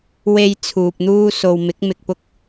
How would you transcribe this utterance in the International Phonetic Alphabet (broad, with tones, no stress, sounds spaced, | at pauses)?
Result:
w e˧ j t͡sʰ uː˨ p̚ n̪ uː˥ s o˨ w m ɪ˨˥ k̚ m ɪ˧ k̚ p ʊ˥ k̚